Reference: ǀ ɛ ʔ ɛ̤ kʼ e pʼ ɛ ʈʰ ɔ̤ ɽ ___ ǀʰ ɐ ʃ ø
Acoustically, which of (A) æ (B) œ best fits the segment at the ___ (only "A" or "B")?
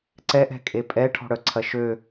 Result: B